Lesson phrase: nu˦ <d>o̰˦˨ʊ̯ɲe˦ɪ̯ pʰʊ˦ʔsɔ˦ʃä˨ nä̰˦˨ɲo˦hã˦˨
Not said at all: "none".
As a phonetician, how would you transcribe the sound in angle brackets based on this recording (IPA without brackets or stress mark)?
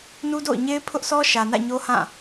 d